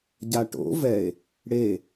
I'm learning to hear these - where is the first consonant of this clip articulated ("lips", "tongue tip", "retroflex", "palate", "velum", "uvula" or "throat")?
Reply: palate